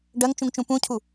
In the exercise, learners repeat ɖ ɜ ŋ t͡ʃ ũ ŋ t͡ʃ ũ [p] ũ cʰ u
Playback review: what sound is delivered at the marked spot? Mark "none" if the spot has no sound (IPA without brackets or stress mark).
p